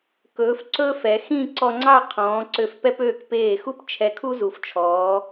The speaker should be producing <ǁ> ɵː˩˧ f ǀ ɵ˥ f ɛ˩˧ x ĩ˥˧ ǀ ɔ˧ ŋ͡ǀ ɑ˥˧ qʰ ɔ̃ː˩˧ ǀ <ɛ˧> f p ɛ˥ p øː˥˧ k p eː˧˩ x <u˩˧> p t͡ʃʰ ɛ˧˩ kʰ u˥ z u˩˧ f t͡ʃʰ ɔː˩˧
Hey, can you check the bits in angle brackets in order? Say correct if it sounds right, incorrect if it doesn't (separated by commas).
incorrect, incorrect, incorrect